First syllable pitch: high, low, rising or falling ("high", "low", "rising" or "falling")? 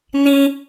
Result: high